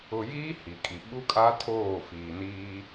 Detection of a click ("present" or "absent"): absent